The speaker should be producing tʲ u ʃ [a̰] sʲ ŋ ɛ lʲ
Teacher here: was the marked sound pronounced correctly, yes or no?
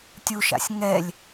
yes